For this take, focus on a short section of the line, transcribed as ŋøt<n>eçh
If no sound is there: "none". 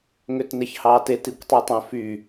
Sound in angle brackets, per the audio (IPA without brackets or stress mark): n